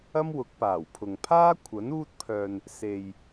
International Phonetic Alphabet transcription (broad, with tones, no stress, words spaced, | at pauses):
ɐ˥mwʊ˨˥k̚paː˨˩wpʰʊ˨ŋ pʰaː˥ kʷʰɐ˨˥n uː˥t̚pʰœː˧n | se˨j